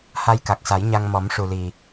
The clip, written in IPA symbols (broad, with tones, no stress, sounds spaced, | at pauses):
h a˧ j k a˨˩ k̚ s a˨˩˦ j ɲ a˧ ŋ m ɔ˨˩˦ m ʂ u˨˩ l i˨˩